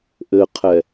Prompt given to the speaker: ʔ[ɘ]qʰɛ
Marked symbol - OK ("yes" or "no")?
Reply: yes